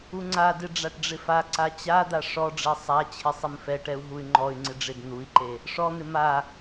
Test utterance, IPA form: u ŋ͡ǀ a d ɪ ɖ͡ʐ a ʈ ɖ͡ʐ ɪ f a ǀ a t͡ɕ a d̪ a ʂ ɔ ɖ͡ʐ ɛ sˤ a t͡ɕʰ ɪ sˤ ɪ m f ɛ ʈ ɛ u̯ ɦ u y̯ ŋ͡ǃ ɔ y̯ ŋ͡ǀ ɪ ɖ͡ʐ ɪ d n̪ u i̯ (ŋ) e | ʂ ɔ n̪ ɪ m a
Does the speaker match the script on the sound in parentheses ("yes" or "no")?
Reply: no